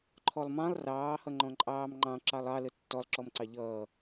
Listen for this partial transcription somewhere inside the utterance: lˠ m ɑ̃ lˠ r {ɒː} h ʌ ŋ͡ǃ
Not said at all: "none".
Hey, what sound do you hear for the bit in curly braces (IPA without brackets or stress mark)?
ɑː